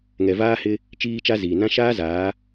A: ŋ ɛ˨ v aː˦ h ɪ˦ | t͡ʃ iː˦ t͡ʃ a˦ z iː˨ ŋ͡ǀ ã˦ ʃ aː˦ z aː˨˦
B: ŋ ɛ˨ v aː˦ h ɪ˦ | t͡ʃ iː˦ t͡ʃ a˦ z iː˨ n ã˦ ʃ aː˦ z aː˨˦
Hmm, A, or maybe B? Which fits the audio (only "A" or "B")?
B